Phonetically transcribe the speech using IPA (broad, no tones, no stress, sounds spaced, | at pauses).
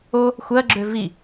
o | xʷ ɜ ɡ͡ǁ ø v i